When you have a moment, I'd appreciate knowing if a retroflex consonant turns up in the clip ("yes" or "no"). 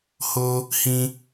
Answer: no